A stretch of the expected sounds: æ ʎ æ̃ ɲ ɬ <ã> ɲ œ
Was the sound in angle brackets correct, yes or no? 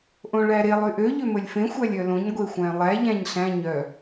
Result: no